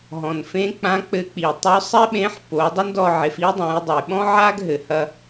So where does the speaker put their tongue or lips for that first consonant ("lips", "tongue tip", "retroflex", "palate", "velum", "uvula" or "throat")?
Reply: throat